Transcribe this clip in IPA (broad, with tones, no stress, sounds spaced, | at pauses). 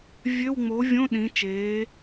vʲ ø˧˥˧ w ŋ͡m o˩˥ vʲ õ˧˥˧ ɗ ĩ˩˧ t͡ʃ eː˩˧